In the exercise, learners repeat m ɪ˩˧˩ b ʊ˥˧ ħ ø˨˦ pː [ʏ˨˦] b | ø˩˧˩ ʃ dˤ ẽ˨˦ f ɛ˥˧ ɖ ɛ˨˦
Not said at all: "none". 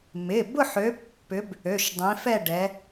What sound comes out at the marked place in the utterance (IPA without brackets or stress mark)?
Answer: ʏ˨˦